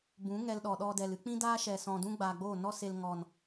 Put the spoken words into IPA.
b ũ˨˦ ŋ ɛ˧ l ɗ ɔ˨ ɗ ɔ˧ d ɛ˨ l ɨ˦ k͡p ĩ˦ d aː˦ ʃ ɛ˨ s ɔ̃˨ d ũ˦ ɡ͡b aː˨ ɡ͡b oː˦˨ n ɔ˦ s e˧ l ŋ ɔ˨ n

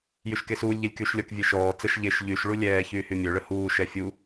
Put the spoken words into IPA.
j y ʃ k e s uː lʲ ʎ e lʲ k yː ʃ lʲ ɔ k vʲ e ʃ ɔː t͡s ə ʃ ʎ e ʃ ʎ y ʃ ɭ u lʲ ɛː ç yː h y mʲ ø ɭ ə h uː ʃ ɛ fʲ u

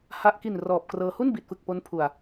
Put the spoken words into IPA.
h a˨˩ ʔ k i˨˩ n r ɔː˨˩ p̚ k r ɤː˧ h u˥˩ n b i˨˩ t̚ f ɯ˨˩ k̚ p o˦˥ n pʰ u˨˩ a̯

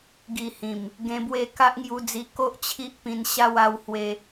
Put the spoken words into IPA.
ɡ i˨˩ h ĩ˨˩ m | ɡ ẽ˧ b w e˥˧ k a˦ ʔ ŋ j u˧ d͡z i˧ k o˦ ʔ t͡ɕʰ i˦ ʔ p ĩ˧ n ɕ a˦ w a˦ w h w e˦

